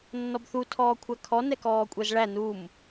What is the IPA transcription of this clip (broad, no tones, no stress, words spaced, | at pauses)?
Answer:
nːɔbθu tʰɔːkʷʰækʰɔ nɛkɔːkʷʼɛzɭæ num